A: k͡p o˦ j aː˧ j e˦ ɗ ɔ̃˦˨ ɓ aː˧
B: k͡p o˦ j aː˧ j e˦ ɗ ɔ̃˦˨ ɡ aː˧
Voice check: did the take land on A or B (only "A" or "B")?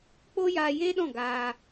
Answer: B